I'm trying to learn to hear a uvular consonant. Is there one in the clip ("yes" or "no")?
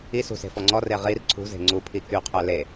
yes